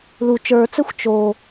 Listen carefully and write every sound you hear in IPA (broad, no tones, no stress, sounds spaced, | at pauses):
l u t͡ʃ ə˞ t͡s ɛ xʷ t͡ʃ o